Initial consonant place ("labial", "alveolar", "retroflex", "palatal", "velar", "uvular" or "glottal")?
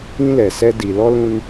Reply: alveolar